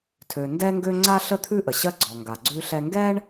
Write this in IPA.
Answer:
tʰ ø˩ n d ɛ˥ ŋ ɡ ø˥ ŋ͡ǀ a˥ ɬ ə˥ t̪ʰ ʉ˥ ʔ ə˩ ɕ ɜ˥ ɡ͡ǀ ɔ˩ ŋ ɡ a˩ ɡ͡ǀ ʉ˥ ɬ ɛ˥ ŋ ɡ ɛ˥ ɳ

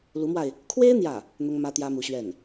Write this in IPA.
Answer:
l u˧˥ m w a˧ ɪ̯ | kʰ w e˥ ɪ̯ n̪ j ä˥˩ | n̪ ʊ˥ ŋ m ä˥ t̪ j ä˥ m u˧˥ ɕ ɥ ɛ˥˩ n

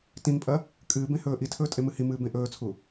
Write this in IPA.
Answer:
t ĩ ŋ pʼ ɐ | kʼ ɨː b ẽ h ɵː ʔ i tʰ ɵː tʼ e m ɨ h i m ɨː b ẽ ʔ ɵː t͡sʰ u

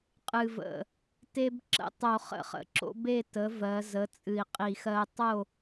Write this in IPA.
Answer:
qʼ ɨ˨˩ v ə̰˨˩ | t e˦ b ǁ ə̰˥˨ tˤ o˧˩˧ χ ə̰˧˩˧ χ ə̰˩˧ ǁ o̰˦ b e˥˨ t ə˩˥ v ɜ˩˧ z ə˩˥ t͡sʼ ɨ˨˩ i̯ qʼ i˧˩˧ x ɜ˦ tˤ o˥˨

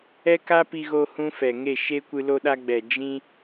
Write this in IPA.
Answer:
ɛ˦ k a˦ p i˧ ɣ o˧ h ũ˦ f ɛ˨ ŋ e˦˨ ʃ e˦ kʷ ɨ˧ l o˧ ɗ a˧ ɡ͡b ɛ˨ d͡ʒ ĩ˧

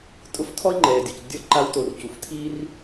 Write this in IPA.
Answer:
tʼ ʊ˥ f tʰ ɔ˥ i̯ ŋ͡ǃ ɛː˩ dʲ ɔ˩ c dʲ ɔ˥ ǃ a˦ w t o˨ r c u˩ f tʰ iː˦ r

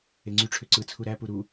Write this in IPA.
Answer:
e ŋ͡ǀ y ʈ͡ʂʰ ø ǀ ɯ t͡sʰ u ɾ æ p u ɾ u

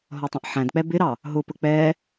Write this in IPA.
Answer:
ɦ ɔ tˤ ə̃ ʔ ħ æ̃ d k͡p ɛ b ɪ ɾ ɑ | ɦ ʊ p ə k͡p ɛ

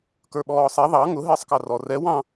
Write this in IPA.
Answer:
k ə˞ ɓ ɔː sˤ ɛ ðˤ ɑ ŋ ʊ ɦ ɪː sˤ k ɑ r ɔ r ɛ w ɑ̃

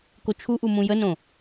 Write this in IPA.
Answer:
k o t͡ʃʰ u ʔ u m ũ j ə n õ

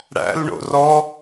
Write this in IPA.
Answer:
ɽ æ̰ l ɳ o̰ r ɔ

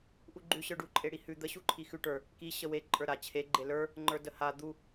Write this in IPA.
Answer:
ʔ u ɡ͡ǃ ʉ ɕ ə˞ ɖ u ǃʼ e ɽ i h ʉ d̪ ə ɕ u ǃʰ i x ʉ ʈ ə˞ | k i ɕ ə w e ǃʼ ə˞ ɾ a t͡ɕʰ e ɡ͡ǃ e l ə˞ | ŋ͡ǃ ə˞ d ə h a d̪ u

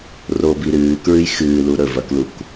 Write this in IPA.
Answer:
r o b i ɾ ɨː k ɹ ɨ j x ɨː l u ɾ ɵ v ɐ k l u k

